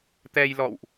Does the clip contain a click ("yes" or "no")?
no